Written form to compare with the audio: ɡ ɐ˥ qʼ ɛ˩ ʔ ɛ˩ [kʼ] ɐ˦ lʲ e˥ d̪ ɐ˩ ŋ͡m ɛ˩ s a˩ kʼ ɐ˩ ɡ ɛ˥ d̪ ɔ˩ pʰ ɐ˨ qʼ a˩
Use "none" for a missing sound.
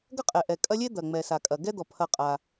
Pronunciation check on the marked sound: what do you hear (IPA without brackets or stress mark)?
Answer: kʼ